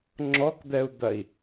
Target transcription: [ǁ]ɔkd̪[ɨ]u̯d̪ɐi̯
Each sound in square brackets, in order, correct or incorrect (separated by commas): incorrect, incorrect